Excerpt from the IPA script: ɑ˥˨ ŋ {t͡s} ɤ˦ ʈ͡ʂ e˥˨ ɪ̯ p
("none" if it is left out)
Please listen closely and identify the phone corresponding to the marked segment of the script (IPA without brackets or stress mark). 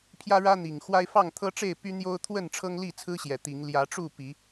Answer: t̪ʰ